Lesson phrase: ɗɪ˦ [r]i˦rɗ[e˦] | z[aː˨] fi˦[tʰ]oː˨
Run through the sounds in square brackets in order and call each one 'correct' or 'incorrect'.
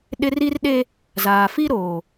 correct, correct, correct, incorrect: ɾ

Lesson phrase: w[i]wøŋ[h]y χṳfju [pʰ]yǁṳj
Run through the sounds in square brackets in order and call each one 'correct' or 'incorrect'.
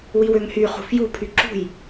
correct, correct, correct

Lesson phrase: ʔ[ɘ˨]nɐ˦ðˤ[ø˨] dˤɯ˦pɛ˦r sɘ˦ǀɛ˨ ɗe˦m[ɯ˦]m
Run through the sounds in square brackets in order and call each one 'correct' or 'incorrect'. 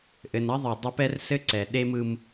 correct, incorrect: ɘ˨, correct

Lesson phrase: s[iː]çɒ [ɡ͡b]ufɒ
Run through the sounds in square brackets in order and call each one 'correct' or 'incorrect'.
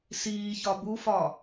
correct, incorrect: b

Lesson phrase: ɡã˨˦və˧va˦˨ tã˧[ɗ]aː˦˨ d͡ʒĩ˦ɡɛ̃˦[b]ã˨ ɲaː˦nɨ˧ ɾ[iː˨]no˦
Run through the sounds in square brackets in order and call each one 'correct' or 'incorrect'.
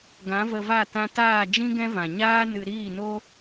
incorrect: t, incorrect: v, incorrect: iː˦˨

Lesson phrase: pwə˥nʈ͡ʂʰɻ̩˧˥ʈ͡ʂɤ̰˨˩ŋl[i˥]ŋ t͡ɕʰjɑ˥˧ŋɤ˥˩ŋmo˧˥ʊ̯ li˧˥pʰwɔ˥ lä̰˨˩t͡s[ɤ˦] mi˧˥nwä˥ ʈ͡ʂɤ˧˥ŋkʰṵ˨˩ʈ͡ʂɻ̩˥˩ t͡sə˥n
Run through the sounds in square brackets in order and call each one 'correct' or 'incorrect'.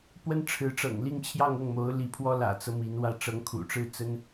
incorrect: i˥˧, correct

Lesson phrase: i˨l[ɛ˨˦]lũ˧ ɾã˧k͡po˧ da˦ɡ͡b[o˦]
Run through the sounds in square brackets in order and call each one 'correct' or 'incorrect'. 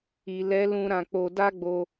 correct, incorrect: o˧

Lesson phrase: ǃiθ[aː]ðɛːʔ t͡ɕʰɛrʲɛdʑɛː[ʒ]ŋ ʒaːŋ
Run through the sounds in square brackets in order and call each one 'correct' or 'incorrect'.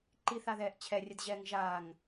incorrect: a, incorrect: none

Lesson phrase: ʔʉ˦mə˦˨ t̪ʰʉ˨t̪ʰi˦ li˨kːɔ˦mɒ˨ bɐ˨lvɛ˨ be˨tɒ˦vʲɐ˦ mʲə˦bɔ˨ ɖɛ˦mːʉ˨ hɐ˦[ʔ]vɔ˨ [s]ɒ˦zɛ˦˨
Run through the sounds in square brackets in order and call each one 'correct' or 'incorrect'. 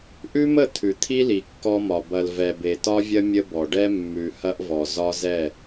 correct, incorrect: z

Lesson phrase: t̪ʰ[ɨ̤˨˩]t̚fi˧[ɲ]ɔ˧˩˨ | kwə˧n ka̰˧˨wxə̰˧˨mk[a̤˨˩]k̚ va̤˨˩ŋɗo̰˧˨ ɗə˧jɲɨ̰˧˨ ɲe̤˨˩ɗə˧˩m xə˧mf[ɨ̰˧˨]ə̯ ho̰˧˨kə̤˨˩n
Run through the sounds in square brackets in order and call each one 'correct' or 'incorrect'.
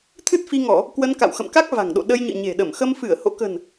incorrect: ɨ˦˥, incorrect: ŋ, incorrect: a˦˥, incorrect: ɨ˧˩

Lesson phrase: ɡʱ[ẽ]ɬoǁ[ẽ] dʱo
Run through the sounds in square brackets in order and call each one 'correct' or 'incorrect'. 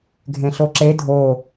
correct, incorrect: e

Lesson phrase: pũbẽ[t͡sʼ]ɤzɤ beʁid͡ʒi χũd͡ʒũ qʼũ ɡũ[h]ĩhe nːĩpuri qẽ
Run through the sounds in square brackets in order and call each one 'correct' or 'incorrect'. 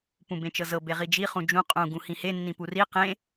incorrect: t͡ʃ, correct

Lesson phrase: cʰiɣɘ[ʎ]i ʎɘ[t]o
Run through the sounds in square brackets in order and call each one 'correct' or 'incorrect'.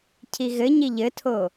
incorrect: ɲ, incorrect: tʰ

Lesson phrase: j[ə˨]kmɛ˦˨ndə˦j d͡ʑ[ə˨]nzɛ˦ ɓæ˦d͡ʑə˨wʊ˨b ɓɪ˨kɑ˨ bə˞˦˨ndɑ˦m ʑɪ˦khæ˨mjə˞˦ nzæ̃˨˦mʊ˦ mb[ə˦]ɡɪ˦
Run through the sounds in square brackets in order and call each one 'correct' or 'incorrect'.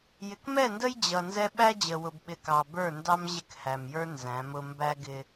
incorrect: ɪ˨, incorrect: ʌ˨, incorrect: æ˦

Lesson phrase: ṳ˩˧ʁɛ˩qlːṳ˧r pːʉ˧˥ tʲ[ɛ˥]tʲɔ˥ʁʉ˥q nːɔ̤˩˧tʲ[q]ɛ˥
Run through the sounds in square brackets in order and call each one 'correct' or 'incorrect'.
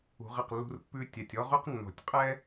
incorrect: ɛ˩, incorrect: qʼ

